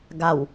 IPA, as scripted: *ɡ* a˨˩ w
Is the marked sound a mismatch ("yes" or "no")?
no